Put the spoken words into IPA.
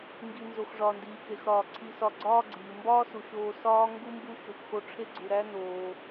ŋ ɡ i˨ n z o˩ x ʐ ɒː˩ n d iː˩ k e˩ x ɾ ɒː˩ ǀʰ i˨ s ɒ˨ ɡ͡ǀ ɒː˦ ɡ͡ǀ iː˩ m b ɒː˦ s u˩ ʃ oː˨ s ɒː˥ ŋ ɡ u˥ m b u˦ ʃ o˨ k x o˦ ʈ͡ʂʰ e˥ ɡ͡ǀ u˨ ɾ æ˥ n oː˨

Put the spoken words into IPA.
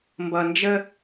m b ʌ˨ n d͡ʒ ə˦

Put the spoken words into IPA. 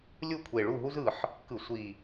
lʲ u˥˨ kʷʰ e˨˩ ɭ u˥˨ ɦ u˥ z ɯ˨˩ ħ | k ɯ˧˩˧ sʷ i˨˩

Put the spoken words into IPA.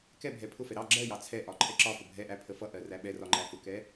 k ɛ bʱ ɛ pʰ ʊ f ɛ ɾ ɑ ɡ͡ǁ ɜ j ɑ t͡sʰ ɛ ʔ ɒ ǃʰ ɛ ǁ ɒ f ə bʱ ɛ ʔ æ pʰ ə f ʌ ʔ ɜ r æ ɓ ɛ r ɒ ŋ͡ǃ æ f ʊ k ɛ

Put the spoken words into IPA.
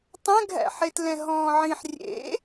tˤ ɛ̃ ɡʱ æ̰ ħ e t l ɛ̃ ɦ ɔ̃ː ʕ ĩ ħ rʲ ḛ

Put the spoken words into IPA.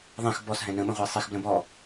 ðˤ ɛ̃ x b ɔ s ɦ ɛ̃ n ə̃ ɓ ə̃ ʁʷ e sˤ i x b l ə̃ b ɔ

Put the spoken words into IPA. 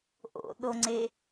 ʔ o̰ ɗ o ŋ͡ǀ e

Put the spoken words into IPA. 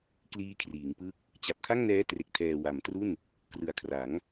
k l iː˦˥ kʰ r iː˩˦ ŋ p ɯ˥˩ k̚ | t͡ɕ a˨˩ p̚ kʰ a˥˩ ŋ n ɛː˦˥ t r e˨˩ k̚ tʰ ɛː˨˩ w a˩˦ m t r u˥˩ n | k r ɯ˨˩ a̯ kʰ r a˩˦ ŋ

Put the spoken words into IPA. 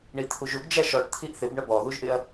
ɳ i t̪ʰ u ʒ u ɡ d͡ʒ æ ʃ ɔ ʈ t̪ʰ i ʔ θ ɪ b ɳ ə b ɔ ð u ʒ ʔ ɪ ɐ̯

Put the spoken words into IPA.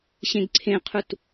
ɕ ẽ ɡ ǀʰ ẽ qʰ u t

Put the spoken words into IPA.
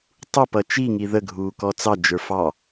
tˤ u p ʌ t͡ʃ i ŋ i ð ə ɡʱ uː k ɔ t͡s ɑ d͡ʒ ə˞ f ɑ

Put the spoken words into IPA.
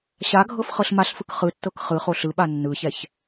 ɕ a ɡʱ ɤ f χ ɤ ɬ m a ɬ f ɯ k χ ɯ tː ɤ k χ ɯ χ o ɬ ɯ ɓ a nː ɯ ç ɛ ç

